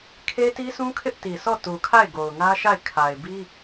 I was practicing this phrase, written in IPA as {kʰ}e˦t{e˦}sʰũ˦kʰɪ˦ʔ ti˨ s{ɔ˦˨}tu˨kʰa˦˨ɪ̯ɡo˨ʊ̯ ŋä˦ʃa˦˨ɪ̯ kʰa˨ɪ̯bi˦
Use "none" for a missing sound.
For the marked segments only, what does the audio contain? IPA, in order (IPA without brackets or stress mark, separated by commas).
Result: kʰ, i˦, ɔ˦˨